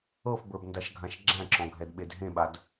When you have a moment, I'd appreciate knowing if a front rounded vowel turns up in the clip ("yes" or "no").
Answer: no